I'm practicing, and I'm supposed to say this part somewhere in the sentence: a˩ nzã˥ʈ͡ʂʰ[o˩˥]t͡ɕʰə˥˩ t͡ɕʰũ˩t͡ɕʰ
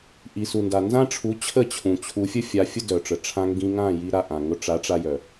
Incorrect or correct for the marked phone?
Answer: incorrect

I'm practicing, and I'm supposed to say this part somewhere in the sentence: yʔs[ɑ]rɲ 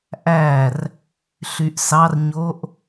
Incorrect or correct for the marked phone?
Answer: correct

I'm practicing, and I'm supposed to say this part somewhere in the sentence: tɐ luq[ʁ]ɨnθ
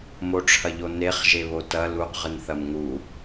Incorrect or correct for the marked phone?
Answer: correct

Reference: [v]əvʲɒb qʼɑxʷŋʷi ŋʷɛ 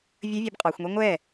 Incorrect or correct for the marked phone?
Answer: incorrect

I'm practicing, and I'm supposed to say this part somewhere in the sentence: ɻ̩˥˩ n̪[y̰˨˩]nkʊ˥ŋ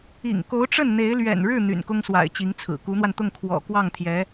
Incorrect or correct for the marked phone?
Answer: correct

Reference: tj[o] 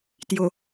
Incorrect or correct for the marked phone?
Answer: correct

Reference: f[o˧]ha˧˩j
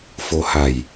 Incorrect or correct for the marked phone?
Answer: correct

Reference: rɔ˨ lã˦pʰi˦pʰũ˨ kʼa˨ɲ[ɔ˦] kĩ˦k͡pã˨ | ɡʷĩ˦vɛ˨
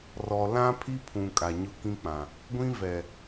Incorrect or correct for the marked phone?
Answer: incorrect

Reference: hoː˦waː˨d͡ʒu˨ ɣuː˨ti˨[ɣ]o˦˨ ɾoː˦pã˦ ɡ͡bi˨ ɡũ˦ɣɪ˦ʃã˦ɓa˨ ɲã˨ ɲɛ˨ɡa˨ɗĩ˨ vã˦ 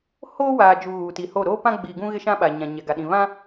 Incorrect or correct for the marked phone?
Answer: incorrect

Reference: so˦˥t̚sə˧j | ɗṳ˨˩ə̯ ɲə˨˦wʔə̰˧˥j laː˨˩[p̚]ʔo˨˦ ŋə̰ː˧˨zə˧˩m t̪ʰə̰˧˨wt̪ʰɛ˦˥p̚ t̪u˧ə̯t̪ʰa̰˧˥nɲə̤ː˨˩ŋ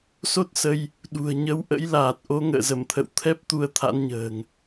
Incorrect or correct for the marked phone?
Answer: incorrect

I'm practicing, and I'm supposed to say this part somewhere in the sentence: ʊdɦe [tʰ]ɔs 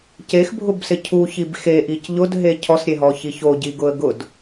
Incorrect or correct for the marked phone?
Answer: incorrect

